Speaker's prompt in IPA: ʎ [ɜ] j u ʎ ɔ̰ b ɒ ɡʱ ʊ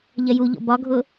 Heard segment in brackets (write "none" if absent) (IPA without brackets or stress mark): ɜ